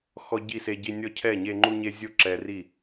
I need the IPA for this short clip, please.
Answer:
xɔ˦ɟi˥˨se˦ɟi˦ nʲɔ˦cʰɛ˥˨ɲe˦ ŋ͡ǃu˦ɲe˦zʲo˥˨ ǁɛ˦ ri˥˨

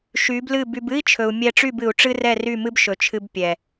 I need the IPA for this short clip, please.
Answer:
ʃy˨˦blɨ˦˨by˧b ɨ˦i̯t͡ʃʰɵ˨u̯ mʲɛ˧ʈ͡ʂy˦˨bɨ˨u̯ ʈ͡ʂɨ˦rɛ˦˨ry˦˨mɨ˦b ʃɵ˨t͡ʃʰɨ˧b pʲɛ˨

